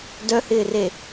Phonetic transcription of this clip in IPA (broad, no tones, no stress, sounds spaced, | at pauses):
d œ h ɪː r e